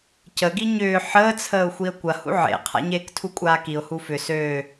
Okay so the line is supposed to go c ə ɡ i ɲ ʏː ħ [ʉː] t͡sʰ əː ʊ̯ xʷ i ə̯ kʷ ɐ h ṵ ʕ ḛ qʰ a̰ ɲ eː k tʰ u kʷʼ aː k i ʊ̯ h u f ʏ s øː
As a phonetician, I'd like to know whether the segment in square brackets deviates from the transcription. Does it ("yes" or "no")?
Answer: yes